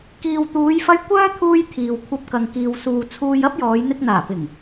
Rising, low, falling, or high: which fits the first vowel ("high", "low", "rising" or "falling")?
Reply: low